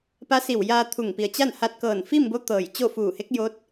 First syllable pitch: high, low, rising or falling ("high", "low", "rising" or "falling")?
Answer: rising